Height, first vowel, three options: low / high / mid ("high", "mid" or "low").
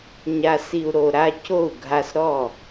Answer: low